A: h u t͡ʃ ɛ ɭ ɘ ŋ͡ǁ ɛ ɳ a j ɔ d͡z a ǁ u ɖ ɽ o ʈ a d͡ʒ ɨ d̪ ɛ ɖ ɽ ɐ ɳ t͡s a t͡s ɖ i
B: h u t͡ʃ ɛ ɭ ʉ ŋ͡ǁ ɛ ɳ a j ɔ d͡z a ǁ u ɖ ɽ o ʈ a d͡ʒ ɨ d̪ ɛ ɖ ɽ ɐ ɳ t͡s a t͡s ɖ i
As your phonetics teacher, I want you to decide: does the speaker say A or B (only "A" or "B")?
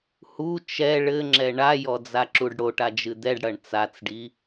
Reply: A